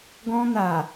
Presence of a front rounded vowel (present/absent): absent